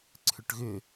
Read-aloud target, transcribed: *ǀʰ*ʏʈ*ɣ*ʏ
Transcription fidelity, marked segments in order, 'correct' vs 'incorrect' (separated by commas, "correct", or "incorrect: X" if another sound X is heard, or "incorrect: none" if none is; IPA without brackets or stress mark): correct, correct